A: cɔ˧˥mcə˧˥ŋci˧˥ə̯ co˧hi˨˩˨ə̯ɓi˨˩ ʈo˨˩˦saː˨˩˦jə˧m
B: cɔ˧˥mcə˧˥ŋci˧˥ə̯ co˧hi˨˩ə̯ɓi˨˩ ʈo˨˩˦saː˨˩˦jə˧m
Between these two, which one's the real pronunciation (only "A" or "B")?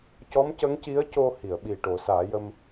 A